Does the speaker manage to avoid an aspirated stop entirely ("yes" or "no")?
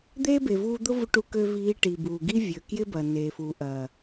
yes